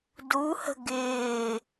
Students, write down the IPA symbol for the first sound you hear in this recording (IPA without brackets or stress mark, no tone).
d